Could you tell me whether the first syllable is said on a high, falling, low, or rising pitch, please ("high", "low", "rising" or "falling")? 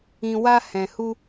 low